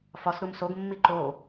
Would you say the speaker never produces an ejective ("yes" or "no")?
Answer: yes